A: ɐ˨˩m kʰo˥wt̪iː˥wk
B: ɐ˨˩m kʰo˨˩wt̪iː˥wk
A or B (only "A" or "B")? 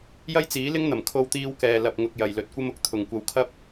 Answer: A